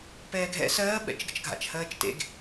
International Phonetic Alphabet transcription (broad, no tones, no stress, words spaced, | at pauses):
pɛːɡʱɛ̰ sɜːɓɛ̰t͡ʃ ɡə̰t͡ʃɡʱa̰t͡ʃhɜːt͡ʃ tḛɡ